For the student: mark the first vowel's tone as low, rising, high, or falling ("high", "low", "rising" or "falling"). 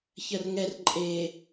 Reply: low